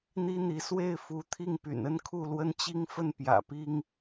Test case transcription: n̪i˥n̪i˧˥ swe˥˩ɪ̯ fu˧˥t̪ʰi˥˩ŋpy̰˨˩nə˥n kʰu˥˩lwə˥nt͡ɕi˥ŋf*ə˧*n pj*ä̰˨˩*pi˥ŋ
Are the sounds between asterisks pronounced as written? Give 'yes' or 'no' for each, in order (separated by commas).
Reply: no, yes